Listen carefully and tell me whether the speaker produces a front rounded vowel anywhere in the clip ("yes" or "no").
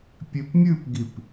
no